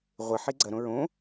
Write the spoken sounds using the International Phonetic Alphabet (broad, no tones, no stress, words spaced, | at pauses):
ʁʷɪħi ɡ͡ǀɐɾõ ɹõ